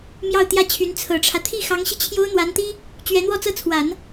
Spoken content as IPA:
mjɑ˥˧ʊ̯t̪jä˥˩t͡ɕʰy˧˥n t͡sʰɤ˨˩ʈ͡ʂʰä˦ t̪ʰi˥˩xɑ˧˥ŋɕi˧ t͡ɕʰjo˥ʊ̯n̪wa˧˥nt̪i˥ | t͡ɕɥɛ˧˥n̪wɔ˥˧t͡sɤ˥˩t͡sʰwa˨˩˦n

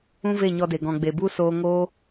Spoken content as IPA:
ũ˦ve˦˨ɲɔ˧de˨ ɡɔ̃˨ɡ͡be˨bu˦ soː˦ ŋoː˦

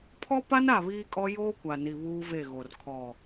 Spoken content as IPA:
pʰɔ˦pa˦n a˦˨βiː˦kʼɔ˦ joː˦kʷa˨ni˨ βuː˦ve˦˨ɣo˨r kʰɔ˨

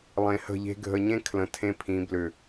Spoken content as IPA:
lˠẽ˨hə̤˦˨ʎe̤˦ ɡʱə˨ɲẽ˦ kʰlə̃˨tʰẽ˦pʰĩ˨˦ blʏ˨

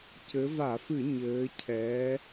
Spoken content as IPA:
cɘ˩˧ va˧˩˧fɨ˧˩˧ ɲɘː˩˧cʰɛː˩˧

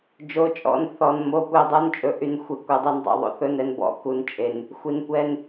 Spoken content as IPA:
d͡ʒo˩˧˩t͡ʃʼɔ̰˩˧˩n θɔ˩n mo˩˧˩kʷi˩˧˩dˤu˩˧˩nt͡ʃʼɵ˩ ʔy˩nxʷe˩ kʷœ˩dˤy˩n dˤo̰˩ðˤo̰˩θɵ˩˧˩n ɛ˩nbɔ̰˩ ku˩nt͡ʃʼe˩n | xʷi˩nkʷɛ˩˧˩n

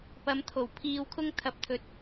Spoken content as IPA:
pɐ˨˧mt̪ʰo˨˩w pʰiː˧wkʰʊ˥ŋ t̪ʰɐ˨˥p̚t̪ʰɵ˨˥t̚

